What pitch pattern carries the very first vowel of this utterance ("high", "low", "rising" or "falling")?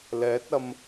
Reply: rising